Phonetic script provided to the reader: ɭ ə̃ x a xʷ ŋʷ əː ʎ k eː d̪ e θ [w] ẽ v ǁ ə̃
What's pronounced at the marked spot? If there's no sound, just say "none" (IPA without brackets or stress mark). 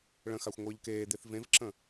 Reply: v